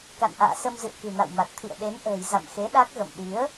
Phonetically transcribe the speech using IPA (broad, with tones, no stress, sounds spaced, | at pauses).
k a̰˧˨ n ʔ a̰ː˧˨ s ə˧ m z ɨ̰˧˨ ə̯ k ɨ̤˨˩ n a̰˧˨ w m a˨˩ t̚ t̪ʰ ḭ˧˨ ə̯ ɗ e˨˦ n ʔ ə̤ː˨˩ j z a̰˧˨ m x e˨˦ ɗ a˦˥ k̚ ɣ ə̰˧˨ m ɗ i˨˦ ə̯